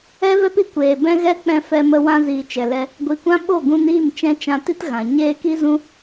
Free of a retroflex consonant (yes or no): yes